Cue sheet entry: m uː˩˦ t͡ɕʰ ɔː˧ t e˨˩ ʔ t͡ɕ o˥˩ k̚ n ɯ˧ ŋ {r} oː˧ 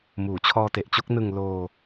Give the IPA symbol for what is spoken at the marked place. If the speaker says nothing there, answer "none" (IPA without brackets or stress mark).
l